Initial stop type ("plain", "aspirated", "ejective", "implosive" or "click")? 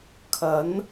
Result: aspirated